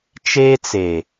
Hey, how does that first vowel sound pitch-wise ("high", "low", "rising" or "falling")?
high